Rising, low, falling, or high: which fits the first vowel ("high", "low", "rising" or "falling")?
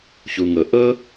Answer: low